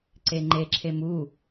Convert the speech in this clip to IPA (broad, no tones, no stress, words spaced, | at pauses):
ǀeŋ͡ǃeǁʰem u